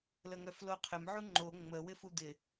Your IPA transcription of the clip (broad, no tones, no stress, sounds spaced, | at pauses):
l ə ŋ œ f l o qʰ ɪ m ʕ u ŋ͡ǃ o ŋ͡m ə w ɪ f u d̪ ɪ